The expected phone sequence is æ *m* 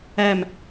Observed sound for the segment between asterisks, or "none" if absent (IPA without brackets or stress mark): m